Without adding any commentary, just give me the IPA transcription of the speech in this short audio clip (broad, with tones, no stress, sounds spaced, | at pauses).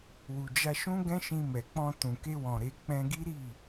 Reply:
w u˨ d͡ʒ a˧ ʃ ũ˦ ɡ ɛ̃˦ ʃ ĩ˧ m ɛ˨ k͡p ɔ̃˧ t ũ˨ k e˧ w ɔ̃˨ ɾ e˧ k͡p ɛ̃˧ ɡ i˦ ɾ i˦˨